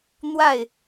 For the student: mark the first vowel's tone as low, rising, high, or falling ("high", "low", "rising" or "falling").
falling